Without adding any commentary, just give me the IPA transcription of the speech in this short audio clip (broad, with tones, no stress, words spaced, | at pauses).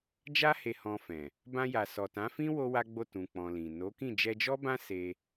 d͡ʒa˧he˨ hɔ̃˧fɛ̃˨ | bã˧ja˨sɔ˨ tã˨˦fĩ˦ wo˦wa˦ɡ͡bo˦˨ tũ˨k͡pɔ̃˨ lĩ˨ no˨˦kĩ˦˨ d͡ʒɛ˧d͡ʒɔ˦bã˦ se˧